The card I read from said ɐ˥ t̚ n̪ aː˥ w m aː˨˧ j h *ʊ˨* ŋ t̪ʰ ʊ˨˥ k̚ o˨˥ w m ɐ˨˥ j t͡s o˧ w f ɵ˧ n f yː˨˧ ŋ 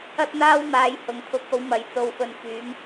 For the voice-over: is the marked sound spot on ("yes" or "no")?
yes